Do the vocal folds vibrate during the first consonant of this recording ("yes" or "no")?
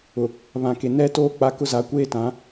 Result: yes